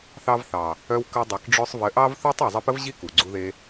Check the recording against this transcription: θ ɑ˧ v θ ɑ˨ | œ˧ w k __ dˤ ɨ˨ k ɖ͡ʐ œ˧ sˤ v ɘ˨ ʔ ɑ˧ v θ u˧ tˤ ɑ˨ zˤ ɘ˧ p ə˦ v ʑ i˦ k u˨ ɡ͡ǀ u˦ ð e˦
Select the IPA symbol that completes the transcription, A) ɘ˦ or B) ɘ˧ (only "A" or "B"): B